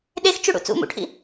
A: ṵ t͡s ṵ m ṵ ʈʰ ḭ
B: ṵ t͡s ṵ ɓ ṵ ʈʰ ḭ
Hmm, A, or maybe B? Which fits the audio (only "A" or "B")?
A